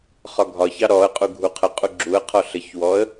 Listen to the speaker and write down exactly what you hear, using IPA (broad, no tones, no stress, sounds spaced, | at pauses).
χ ɒ ɡʱ ɒ ç ɑ ɾ ɔ ə̯ qʼ u ɡʱ u qʰ ə qʼ u ɡ͡ǁ u ə̯ qʰ ɔ ɬ ə ç w ɔ ə̯